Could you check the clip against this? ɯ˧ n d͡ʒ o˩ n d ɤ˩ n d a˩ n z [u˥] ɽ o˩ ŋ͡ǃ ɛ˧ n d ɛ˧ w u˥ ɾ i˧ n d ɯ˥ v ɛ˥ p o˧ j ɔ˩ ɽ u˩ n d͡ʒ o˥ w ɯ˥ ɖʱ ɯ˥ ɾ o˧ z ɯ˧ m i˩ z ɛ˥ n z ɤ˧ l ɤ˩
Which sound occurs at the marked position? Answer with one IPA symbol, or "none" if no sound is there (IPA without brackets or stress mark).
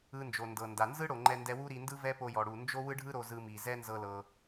ɯ˥